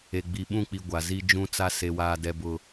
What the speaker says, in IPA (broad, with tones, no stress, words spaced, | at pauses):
e˨ɡ͡bi˨ɓũ˦˨k͡pi˨ ɡʷa˨zi˦d͡ʒũ˦t͡sa˦ se˨waː˨dɛ˨ bʊ˨